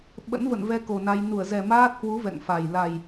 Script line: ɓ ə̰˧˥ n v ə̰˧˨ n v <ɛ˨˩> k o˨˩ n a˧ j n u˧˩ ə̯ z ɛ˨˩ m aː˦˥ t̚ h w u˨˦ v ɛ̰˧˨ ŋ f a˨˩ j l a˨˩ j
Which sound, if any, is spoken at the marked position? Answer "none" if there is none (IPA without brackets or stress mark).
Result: ɛ˧